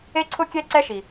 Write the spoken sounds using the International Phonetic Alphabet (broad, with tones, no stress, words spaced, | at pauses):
e˦ǀʰʊ˦kʲɛ˦ ǀɛ˦ʃi˨